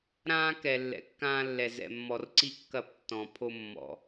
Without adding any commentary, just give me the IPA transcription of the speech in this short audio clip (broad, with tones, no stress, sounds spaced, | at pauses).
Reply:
ɾ ãː˦ k ɛ˨ lː ɛ̰˨ kː ãː˦ lː ɛ˨ z ɛ̰˨ mː ɔ˨ r ǀ i˦ kː ɐ˦˨ p tː ɔ̃˨ pʰ o˦ mː ɔ̰˨